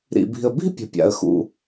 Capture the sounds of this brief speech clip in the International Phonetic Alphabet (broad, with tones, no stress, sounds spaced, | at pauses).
ɾ ḭ˨ b i̤˨ ə̯ b i̤˥ pʲ ə̤˨ pʲ a̰˨ ə̯ x ṵ˨